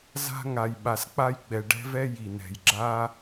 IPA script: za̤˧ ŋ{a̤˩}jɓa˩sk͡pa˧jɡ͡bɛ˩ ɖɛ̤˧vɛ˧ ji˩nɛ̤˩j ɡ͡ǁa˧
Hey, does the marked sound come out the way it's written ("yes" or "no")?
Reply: no